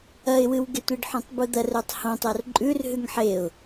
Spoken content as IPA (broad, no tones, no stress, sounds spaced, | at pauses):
ɐ ɪ̯ w ɨ w ɡ e tʷ i ɖ ħ ũ tˤ b u d̪ ɐ r ɵ tˤ h õ tˤ o r ǃʼ ʉ r ɦ ʉ ŋ ħ e ʊ̯